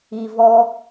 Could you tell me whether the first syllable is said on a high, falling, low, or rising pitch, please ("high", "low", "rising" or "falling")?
low